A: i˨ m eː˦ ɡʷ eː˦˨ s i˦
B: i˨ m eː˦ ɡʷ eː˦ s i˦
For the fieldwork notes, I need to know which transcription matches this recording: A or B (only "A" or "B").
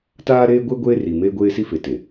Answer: B